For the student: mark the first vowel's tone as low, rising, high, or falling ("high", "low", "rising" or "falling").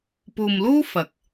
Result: low